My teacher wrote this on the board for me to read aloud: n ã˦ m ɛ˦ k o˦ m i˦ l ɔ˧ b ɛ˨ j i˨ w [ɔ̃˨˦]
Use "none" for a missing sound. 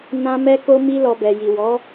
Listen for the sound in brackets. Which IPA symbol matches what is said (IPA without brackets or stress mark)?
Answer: ɔ˨˦